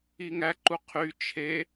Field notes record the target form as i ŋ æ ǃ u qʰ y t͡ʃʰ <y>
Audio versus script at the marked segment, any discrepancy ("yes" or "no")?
yes